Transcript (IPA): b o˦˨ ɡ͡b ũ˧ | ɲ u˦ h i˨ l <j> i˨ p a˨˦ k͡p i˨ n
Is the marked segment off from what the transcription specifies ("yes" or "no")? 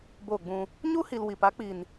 yes